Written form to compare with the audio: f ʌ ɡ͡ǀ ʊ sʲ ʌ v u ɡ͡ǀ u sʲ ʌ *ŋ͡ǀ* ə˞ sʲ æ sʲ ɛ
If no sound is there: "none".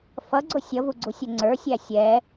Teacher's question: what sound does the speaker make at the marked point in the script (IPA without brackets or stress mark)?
ŋ͡ǀ